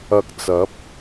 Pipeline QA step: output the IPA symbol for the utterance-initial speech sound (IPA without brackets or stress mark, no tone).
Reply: ɐ